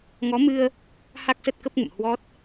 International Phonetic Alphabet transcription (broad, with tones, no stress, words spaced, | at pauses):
ŋɔ˨˦mɨ˧ə̯ | ha˦˥k̚sə˦˥t̚kə˦˥p̚ŋə̰˧˨m hwɔ˦˥t̚